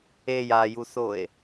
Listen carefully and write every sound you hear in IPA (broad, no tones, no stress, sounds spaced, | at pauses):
e j a j u s o e̯